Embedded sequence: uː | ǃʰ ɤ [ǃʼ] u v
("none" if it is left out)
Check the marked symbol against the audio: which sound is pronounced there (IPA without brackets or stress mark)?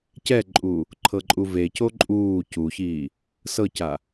ǃʼ